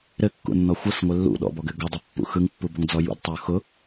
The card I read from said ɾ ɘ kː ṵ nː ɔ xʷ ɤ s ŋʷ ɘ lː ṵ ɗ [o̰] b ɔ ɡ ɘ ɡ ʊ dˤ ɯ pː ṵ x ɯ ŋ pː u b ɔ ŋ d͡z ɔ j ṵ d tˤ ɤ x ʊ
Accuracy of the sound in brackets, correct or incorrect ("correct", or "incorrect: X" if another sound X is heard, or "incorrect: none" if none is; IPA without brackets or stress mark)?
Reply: incorrect: ɔ̰